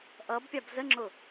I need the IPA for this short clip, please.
ʔ ʌ b pʲ ɑ b z ə ŋ͡ǁ ʊ

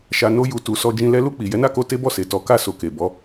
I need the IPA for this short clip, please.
ʃ a˨ n o˧ j u˨ t u˨ s ɔ˧ d͡ʒ ĩ˧ l ɛ˧ l u˧ k͡p i˨ j ɛ˨˦ n a˦˨ k o˧ t e˦ b ɔ˦˨ s e˨ t ɔ˨˦ k a˦˨ s o˧ k e˨ b ɔ˨˦

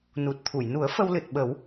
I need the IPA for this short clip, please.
n u˨˩ t̚ t̪ʰ u˨˩˨ j n u˨˩˦ ə̯ f ə˧ w l ɨ˨˩ t̚ ɓ ə˨˩˦ w

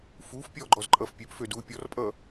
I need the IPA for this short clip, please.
f uː f pʲ ɔː ɡ͡ǃ ɔ z ǃʼ ʌː f pʲ ø p f ø d uː pʲ ɔ r pʼ ʌː

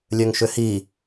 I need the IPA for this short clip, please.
lʲ ø ŋ ʃ ʏ h i

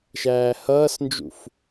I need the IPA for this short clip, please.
ʃ æː h ʌː s n d͡ʒ ṵ f

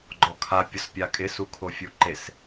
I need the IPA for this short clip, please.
ɡ͡ǃ ɔ kʰ a pʲ ʊ s pʲ a kʼ ɪ s u kʰ o fʲ u ǃ e s

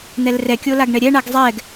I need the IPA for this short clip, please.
n̪ ɛ l r ɛ kʲ o l a ɡ ɳ ɛ ɾʲ ɛ ɳ a ɡ zˤ ɛ ɡ

